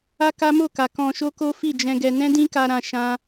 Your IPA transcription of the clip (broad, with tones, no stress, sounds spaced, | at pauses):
a˦ k a˦ m o˦˨ k a˨ k ɔ̃˧ ʃ o˦ k o˦ f i˦˨ d͡ʒ ɛ̃˧ ɡ ɛ˧ n ɛ̃˦ d ĩ˦ k a˧ ɾ ã˧ ʃ ã˦